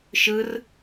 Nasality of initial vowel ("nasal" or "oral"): oral